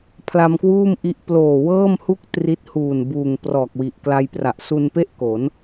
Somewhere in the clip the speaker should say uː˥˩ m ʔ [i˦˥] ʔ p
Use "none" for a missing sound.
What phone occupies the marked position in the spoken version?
i˦˥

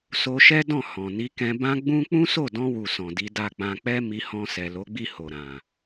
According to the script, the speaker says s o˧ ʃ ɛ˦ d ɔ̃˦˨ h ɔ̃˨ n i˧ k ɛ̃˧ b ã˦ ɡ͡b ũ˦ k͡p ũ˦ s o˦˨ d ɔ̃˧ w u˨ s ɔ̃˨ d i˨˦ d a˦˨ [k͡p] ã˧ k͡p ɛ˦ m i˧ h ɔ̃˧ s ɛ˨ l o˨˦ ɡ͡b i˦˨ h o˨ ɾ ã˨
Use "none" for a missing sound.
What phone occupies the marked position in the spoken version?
k͡p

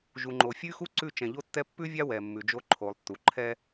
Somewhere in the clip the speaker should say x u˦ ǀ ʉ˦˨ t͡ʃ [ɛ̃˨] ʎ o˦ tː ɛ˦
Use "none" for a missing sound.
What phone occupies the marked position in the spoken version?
ɛ̃˨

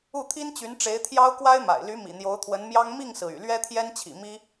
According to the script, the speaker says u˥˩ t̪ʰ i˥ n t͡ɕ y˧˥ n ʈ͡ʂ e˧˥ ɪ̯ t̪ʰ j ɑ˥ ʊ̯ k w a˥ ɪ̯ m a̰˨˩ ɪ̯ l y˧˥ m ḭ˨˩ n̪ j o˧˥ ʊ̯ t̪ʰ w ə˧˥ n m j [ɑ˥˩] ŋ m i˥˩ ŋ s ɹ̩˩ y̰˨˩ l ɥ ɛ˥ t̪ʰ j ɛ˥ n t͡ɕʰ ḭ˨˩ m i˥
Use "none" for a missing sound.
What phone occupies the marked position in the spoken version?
ɑ˥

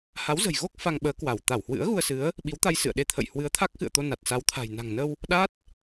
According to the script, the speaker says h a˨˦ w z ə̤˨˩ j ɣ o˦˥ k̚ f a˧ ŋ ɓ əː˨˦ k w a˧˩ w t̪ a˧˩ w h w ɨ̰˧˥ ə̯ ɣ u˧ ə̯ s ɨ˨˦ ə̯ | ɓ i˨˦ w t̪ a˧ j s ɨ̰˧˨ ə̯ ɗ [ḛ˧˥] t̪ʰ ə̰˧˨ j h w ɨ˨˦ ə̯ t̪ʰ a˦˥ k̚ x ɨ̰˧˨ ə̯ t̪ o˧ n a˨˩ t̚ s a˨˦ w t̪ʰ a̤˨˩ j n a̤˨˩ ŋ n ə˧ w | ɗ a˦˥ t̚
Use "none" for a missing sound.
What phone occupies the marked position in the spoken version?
e˧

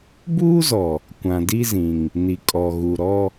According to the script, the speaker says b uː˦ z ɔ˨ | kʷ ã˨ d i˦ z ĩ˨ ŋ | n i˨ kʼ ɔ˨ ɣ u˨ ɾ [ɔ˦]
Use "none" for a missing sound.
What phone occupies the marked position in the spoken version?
ɔ˦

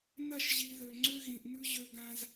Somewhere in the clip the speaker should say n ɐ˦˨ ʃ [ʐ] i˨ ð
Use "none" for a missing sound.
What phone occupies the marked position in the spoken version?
ʑ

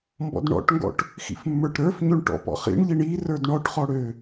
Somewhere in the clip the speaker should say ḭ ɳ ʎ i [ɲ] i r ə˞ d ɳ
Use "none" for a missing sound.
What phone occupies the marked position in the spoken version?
ɳ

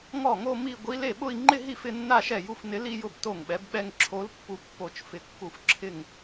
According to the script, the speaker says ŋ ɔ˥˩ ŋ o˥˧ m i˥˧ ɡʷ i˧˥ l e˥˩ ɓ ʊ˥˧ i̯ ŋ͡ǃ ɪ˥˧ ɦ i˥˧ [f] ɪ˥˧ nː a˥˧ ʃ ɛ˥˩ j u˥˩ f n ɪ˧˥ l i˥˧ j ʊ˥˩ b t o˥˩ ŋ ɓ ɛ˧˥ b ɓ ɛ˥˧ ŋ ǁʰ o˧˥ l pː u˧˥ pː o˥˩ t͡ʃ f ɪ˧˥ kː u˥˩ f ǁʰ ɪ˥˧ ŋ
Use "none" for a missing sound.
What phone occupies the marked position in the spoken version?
f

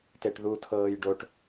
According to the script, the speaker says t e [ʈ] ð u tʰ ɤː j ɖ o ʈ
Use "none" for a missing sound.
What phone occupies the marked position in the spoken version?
ʈ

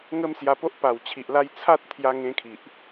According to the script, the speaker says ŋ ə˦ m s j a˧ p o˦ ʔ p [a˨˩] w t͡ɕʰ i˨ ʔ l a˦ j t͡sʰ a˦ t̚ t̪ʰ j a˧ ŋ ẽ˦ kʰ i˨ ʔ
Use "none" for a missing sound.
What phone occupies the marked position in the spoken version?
a˨˩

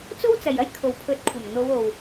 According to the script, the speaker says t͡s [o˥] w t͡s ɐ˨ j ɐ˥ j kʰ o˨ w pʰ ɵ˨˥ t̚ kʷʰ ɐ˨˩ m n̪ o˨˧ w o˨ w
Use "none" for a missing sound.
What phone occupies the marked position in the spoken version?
o˥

